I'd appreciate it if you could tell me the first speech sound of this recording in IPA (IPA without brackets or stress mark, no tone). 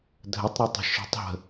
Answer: dʱ